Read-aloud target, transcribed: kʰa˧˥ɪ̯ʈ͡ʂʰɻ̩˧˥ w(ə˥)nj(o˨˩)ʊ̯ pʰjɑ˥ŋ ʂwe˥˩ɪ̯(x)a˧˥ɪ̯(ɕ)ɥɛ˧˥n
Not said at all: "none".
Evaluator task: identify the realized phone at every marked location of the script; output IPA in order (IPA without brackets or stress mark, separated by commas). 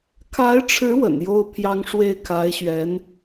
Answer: ə̰˨˩, o˥, kʰ, ɕ